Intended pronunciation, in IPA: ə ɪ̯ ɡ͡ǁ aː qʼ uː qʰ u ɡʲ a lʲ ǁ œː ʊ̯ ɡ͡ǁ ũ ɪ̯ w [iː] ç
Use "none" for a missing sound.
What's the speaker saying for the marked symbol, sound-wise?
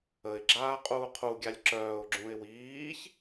iː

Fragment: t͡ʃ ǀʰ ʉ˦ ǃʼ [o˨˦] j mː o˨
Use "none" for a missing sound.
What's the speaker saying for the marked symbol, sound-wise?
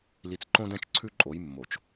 o˨˦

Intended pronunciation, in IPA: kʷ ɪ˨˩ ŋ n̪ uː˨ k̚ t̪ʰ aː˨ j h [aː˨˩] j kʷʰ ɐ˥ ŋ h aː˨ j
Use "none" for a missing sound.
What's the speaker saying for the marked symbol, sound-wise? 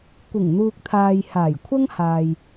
aː˨˩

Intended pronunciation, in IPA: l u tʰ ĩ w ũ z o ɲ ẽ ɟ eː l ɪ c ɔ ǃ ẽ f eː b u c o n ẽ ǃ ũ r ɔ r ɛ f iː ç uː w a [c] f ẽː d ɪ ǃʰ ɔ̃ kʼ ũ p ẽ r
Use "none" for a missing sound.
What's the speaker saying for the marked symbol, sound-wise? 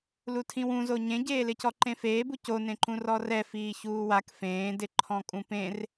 k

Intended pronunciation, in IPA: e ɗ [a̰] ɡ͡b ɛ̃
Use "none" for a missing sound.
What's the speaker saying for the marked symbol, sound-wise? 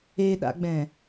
a̰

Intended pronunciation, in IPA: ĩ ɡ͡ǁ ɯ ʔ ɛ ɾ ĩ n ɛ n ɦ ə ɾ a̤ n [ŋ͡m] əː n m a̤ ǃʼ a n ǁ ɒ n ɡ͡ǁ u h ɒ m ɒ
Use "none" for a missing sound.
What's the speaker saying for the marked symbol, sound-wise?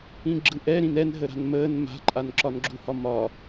m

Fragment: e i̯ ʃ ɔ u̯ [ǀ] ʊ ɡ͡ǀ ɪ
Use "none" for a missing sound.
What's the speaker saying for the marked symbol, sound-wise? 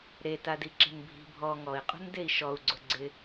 ɡ͡ǀ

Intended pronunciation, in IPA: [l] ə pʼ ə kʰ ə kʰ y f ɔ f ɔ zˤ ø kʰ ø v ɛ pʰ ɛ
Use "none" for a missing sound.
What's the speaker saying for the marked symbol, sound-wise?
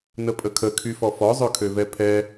n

